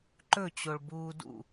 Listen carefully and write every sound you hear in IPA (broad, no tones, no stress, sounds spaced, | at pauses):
ǃ ɵ t͡ɕ o ɭ b uː d ṵ